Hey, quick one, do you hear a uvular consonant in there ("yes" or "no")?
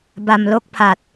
no